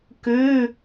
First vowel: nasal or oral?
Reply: oral